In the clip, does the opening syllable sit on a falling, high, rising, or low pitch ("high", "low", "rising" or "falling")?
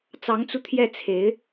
rising